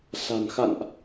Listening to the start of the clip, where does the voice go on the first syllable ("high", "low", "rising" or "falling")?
low